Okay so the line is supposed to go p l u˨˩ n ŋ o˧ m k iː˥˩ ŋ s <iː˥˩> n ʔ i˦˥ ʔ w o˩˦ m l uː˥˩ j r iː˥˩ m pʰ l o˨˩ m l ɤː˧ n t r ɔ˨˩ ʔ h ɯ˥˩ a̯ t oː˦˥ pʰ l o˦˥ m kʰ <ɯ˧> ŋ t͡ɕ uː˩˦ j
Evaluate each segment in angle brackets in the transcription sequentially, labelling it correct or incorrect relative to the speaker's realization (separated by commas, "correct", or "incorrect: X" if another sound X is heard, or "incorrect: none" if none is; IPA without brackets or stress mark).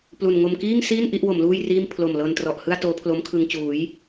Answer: correct, correct